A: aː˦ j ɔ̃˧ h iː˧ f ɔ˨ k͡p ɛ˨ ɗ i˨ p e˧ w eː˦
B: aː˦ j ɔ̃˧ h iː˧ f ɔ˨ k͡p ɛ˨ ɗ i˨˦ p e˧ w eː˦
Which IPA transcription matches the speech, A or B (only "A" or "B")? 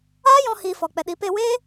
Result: B